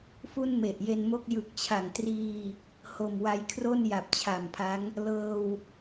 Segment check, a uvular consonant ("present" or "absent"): absent